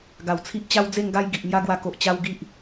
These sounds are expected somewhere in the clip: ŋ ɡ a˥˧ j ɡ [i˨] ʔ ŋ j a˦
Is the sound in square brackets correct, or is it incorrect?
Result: correct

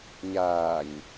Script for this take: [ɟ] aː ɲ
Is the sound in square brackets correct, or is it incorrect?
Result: incorrect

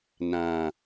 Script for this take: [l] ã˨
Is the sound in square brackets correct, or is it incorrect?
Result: incorrect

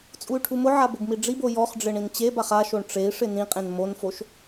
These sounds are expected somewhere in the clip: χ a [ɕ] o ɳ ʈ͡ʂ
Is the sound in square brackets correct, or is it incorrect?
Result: incorrect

